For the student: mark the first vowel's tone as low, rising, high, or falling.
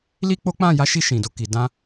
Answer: high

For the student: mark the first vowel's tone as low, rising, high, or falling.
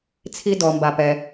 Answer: high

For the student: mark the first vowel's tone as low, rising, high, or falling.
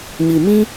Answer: low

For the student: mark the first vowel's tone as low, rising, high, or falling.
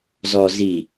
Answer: low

